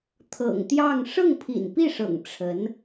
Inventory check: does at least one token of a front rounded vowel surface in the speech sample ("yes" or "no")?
no